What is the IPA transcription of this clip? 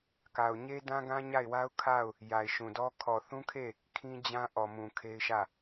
k a˨ ʊ̯ ɲ e˦ d ã˦ ɡ ã˦ ɲ a˦˨ ɪ̯ w a˦ ʊ̯ kʰ a˦˨ ʊ̯ | j a˨ ɪ̯ ʃ ũ˨ d ɔ˦ kʰ ɔ˨ θ ũ˦ kʰ e˦˨ | kʰ ĩ˦ d͡ʑ ã˦ ʔ ɔ˨ m ũ˨ kʰ e˦ ɪ̯ ʃ ä˦˨

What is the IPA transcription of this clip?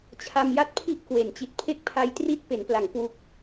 t͡ɕʰ a˧ m j a˥˩ t̚ pʰ i˥˩ ʔ k w e˩˦ n t͡ɕ i˨˩ t̚ pʰ e˥˩ k̚ pʰ a˧ j t r i˥˩ t̚ p e˩˦ n p l a˩˦ ŋ k w u˨˩ k̚

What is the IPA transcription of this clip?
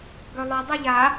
ɡ œ lˠ œ dˤ ɯ ʎ a

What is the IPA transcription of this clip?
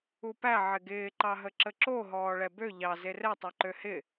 u p æ ʕ ɪ ɡ ɪː ǃ ɑ ɦ ə ǁ ə ǁ o ɦ ɔː ɭ ɛ b ø ʎ ɑ z e r ɛ tˤ ɛ ǃ ø h ɪ

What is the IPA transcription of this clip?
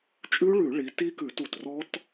t͡ʃʼ ʉ˦˥ ɭ ʉ˧˩˧ ɭ i˨˦ t i˦˥ k ʉ˧˩˧ t u˩ t r ɔ˦˥ t

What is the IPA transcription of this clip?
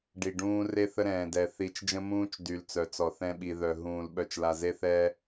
ɖ i˨ ɖ ũː˦ r e˦ θ ə˦ ɾ ɛ̃ː˨ d ɛ˨ θ i˨˦ t͡ʃ d͡ʒ ə̃˦ m ũː˦ t͡ʃ d y˨ l t͡s œ˨ t͡s ɔ˨ θ ɛ̃˦ ɓ i˨ ð œ˨ ɦ ũː˨ l ɓ œ˨ t͡ʃ l a˨ z e˦ θ ɛː˦

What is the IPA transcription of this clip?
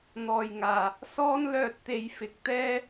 n̪ ɔː˨˩ j ŋ aː˨˩ | s ɔː˥ n l œː˧ t̚ t̪ e˨˧ j f ɪ˨˥ k̚ t̪ ɛː˥

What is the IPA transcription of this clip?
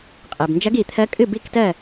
qʼ e˩ b n d͡ʒ ɐ˧˥ ɡ i˩˧ t̪ʰ ɜ˧˥ kʼ ɨ˥˨ b i˥˨ k t ɜ˥˨

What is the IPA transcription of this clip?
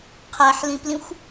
qʰ æ ħ l ĩ p l ĩ xʷ

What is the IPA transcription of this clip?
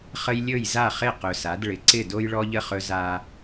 χ ə˦ j lʲ ɵ˦˨ j z a˦˨ χ ɪ˦˨ q ɵ˨ s a˨˦ d ɭ ɪ˨ ǀ ɪ˦˨ d o˦ j ɭ ɔ˦ ʎ ə˦ χ ɵ˦ z a˦

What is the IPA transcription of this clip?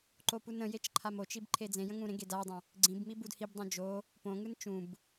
ǃ o p u n ə̃ j e t͡ʃ ǃʰ a m o t͡ʃ i b ǃʰ e d͡z ẽ j ə̃ ŋ ũ ɾ ẽ ɡ e d a dˤ ə̃ | ɡ͡ǀ ĩ b m i b u d h i b dˤ õ d͡ʒ o | p õ ŋ ɯ n t͡ʃ ũ b

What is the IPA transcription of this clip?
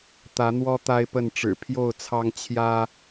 t̪ ä˨˦ n̪ w ɔ˦ t̪ a˦ ɪ̯ p ə˥˨ n ʈ͡ʂ ɻ̩˨˩ pʰ j o˥˨ ʊ̯ t͡sʰ ɑ˦ ŋ t͡ɕʰ j ä˦

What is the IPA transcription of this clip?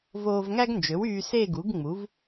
v oː˧ v ŋ æ˥ ɡ n d͡ʒ ø˩˥ w yː˧ s e˥˧ ɡ u˩˥ ɡ ŋ͡m u˩˥ v

